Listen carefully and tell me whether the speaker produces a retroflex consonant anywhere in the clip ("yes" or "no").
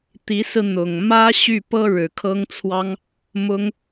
yes